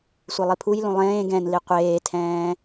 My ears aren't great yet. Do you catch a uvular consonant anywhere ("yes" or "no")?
yes